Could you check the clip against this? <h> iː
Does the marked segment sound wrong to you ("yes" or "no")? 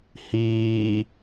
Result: no